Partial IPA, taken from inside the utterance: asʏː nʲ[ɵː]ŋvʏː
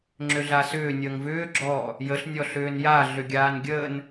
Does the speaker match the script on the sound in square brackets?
no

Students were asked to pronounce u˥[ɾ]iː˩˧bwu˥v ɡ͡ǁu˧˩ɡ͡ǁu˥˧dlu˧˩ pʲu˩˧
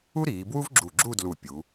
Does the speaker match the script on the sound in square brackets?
yes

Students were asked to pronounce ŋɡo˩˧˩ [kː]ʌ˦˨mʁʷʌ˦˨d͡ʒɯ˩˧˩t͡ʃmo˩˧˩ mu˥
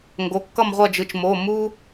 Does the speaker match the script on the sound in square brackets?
yes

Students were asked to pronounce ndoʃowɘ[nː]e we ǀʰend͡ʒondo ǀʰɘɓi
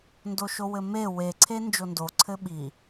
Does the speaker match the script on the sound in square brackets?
no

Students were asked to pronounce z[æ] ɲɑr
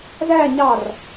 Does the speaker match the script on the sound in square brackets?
yes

